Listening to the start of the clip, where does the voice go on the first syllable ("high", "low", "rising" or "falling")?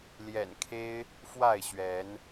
low